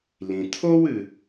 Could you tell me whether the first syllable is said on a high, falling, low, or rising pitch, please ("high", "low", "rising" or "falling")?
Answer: low